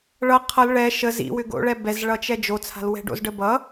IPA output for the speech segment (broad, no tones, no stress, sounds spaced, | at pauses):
ɭ ʌ qʰ ʌ l ɭ ɛ ʃ ə z ḭ w ʏ ɡ o̰ ɭ ɛ b ɛ z ɭ ʌ t͡ʃ ɛ d͡ʒ o t͡sʰ a̤ l w ɛ̤ ɖ o̰ z ɖ ə b ʌ